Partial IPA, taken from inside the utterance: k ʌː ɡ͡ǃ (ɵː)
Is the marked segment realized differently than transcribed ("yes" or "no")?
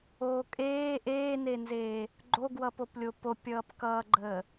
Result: yes